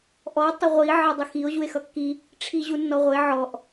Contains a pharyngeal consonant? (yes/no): yes